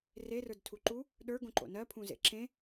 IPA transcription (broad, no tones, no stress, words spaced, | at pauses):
rerə˞dtʰu ǃu | ɗə˞ɡõǃo̰ nɜpʰũzḛ ǁẽ